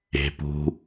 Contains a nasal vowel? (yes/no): no